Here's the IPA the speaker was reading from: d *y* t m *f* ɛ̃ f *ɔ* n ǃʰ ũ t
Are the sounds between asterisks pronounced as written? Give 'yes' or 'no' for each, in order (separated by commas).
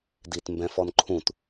no, no, yes